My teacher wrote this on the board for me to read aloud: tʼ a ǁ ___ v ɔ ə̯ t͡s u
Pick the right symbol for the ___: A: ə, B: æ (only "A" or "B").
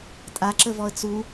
A